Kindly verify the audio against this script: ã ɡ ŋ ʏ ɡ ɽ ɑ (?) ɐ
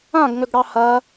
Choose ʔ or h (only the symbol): h